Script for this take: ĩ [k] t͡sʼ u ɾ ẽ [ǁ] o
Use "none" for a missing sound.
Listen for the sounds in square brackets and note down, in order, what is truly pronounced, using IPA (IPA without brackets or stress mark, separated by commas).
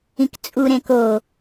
k, k